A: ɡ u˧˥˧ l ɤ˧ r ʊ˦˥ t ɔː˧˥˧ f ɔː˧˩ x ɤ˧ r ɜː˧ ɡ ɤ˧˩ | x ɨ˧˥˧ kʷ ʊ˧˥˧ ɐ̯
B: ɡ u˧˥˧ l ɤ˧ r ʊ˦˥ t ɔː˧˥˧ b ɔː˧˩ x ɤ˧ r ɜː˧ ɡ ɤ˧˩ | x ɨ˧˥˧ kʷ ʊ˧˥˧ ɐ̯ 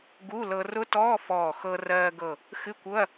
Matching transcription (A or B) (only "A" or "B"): A